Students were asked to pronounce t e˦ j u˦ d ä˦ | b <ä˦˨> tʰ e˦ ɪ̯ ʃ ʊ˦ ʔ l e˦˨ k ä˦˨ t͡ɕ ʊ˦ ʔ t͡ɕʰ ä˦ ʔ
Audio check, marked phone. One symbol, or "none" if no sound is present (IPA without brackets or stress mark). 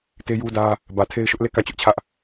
ä˨